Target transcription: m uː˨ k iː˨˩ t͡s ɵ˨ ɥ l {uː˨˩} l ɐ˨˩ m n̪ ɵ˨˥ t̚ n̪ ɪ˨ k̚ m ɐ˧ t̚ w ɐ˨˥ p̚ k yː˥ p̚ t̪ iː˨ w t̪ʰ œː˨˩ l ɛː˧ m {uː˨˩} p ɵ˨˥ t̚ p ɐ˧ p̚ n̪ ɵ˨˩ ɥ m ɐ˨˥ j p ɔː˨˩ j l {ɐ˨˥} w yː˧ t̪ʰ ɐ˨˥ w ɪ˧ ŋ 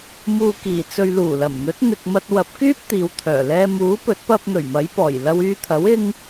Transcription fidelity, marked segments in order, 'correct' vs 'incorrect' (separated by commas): correct, incorrect, incorrect